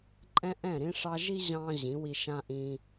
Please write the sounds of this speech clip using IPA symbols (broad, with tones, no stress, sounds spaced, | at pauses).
ǃʼ ɛ̃˦ ʔ ɛ̃˦˨ ɾ ĩ˧ ʂ ɑ˧ ʒ i˦ ʑ ɑ̃˧ ʑ ĩ˨˦ w i˧ ʃ ã˦ ʔ ĩ˧